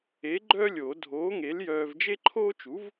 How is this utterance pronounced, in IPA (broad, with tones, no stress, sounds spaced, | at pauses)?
e˨˥ ɡ͡ǃ œ˥ lʲ o˨˩˦ dʱ oː˨˥ ŋ e˨˥ l j œː˧ v d͡ʒ e˥ ǃʰ oː˥ t͡ʃ u˨˥ v